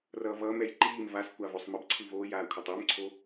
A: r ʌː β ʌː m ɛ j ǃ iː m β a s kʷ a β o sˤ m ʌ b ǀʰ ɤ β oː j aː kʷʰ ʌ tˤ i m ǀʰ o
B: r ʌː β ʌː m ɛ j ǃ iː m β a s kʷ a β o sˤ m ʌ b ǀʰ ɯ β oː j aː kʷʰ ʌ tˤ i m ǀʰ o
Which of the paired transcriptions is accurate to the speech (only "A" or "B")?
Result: B